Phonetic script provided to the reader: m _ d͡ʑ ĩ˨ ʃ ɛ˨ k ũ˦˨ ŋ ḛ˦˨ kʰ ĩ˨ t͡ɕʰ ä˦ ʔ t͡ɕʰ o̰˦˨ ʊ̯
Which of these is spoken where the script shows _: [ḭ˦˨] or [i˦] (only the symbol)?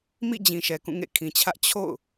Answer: ḭ˦˨